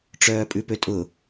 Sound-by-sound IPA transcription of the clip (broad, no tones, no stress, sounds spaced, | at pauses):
ʈ͡ʂ œː pʼ ʉ p ø tʼ ʊ